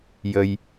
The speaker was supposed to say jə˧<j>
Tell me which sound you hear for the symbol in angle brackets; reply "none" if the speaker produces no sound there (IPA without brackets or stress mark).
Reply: j